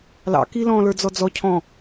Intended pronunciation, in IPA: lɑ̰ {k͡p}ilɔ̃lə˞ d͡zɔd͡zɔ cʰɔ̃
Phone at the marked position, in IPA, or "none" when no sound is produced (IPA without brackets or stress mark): k